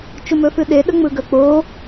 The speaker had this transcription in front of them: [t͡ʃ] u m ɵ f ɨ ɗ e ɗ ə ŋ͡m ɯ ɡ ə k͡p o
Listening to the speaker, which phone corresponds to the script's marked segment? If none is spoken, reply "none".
t͡ʃ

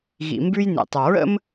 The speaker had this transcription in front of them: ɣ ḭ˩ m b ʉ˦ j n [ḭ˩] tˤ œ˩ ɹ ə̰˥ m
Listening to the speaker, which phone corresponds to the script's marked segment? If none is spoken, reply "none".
ḭ˩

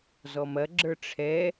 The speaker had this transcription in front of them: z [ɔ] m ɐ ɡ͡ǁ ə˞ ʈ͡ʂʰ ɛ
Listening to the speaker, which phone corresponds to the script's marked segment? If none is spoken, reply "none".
ɔ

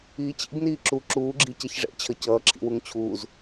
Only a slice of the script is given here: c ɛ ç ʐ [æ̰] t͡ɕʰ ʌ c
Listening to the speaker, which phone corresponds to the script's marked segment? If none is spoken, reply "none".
ɛ̰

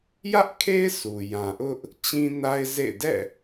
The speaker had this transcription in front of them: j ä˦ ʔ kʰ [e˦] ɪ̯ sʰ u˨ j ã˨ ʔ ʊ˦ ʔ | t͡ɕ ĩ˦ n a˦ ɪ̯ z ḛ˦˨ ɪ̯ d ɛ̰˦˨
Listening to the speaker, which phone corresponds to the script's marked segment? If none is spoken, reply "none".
e˦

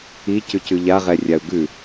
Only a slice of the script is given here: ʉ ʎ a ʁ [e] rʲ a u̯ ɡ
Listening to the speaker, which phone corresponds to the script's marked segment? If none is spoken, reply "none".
ɛ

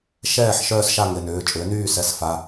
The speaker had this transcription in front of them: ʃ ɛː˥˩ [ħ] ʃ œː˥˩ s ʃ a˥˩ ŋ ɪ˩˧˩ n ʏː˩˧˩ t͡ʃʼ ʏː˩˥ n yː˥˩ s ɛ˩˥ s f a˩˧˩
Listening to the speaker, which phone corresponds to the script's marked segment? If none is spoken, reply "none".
ħ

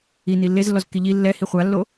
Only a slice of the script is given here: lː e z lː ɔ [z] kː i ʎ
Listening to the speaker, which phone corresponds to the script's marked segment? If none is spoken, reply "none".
z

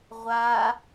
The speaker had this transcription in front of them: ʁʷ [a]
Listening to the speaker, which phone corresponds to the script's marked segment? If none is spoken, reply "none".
a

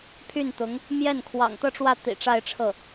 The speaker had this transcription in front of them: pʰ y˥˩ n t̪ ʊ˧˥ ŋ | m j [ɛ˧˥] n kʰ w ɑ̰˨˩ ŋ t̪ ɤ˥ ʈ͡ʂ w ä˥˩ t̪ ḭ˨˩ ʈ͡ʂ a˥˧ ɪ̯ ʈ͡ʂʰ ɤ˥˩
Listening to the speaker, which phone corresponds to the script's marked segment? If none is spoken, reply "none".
ɛ˥˩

